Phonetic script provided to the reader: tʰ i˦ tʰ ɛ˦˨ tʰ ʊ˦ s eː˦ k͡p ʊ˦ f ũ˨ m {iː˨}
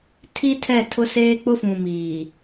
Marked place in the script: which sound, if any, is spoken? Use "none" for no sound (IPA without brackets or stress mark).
iː˨